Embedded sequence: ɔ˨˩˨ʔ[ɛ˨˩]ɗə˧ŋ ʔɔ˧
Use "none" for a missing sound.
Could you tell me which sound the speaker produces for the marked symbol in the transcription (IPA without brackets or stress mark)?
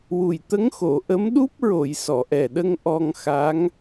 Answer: ɛ˨˩